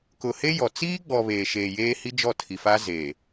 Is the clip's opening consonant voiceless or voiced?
voiceless